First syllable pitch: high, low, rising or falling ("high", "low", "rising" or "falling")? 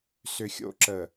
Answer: low